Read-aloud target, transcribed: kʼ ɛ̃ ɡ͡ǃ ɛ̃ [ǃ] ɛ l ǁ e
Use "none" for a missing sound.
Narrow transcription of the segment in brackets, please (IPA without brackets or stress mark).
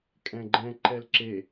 ǃ